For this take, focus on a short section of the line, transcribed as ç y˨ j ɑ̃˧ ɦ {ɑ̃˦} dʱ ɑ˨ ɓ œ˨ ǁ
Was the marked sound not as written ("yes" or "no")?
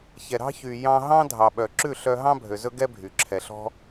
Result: no